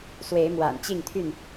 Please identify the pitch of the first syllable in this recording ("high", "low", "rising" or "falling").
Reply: rising